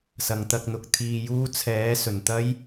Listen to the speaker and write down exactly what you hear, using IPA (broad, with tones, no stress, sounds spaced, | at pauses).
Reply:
s ɐ˨ ŋ t̪ ɐ˧ k̚ n̪ ʊ˨ k̚ t̪ʰ iː˧ j uː˥ t͡sʰ ɛː˨˥ s ɵ˨˩ n t̪ ɐ˥ j